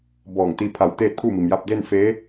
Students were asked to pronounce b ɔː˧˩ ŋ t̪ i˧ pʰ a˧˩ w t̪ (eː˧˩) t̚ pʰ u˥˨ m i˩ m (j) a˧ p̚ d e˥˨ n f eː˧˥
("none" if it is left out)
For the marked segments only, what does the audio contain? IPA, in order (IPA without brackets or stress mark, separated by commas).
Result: eː˥˨, j